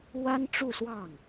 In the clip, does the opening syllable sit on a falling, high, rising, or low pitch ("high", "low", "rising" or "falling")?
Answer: high